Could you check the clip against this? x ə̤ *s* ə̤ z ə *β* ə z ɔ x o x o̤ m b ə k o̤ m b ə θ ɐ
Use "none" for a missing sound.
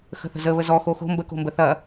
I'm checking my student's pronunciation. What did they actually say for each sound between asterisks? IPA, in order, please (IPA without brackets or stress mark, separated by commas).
θ, β